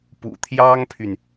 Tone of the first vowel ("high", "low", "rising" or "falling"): low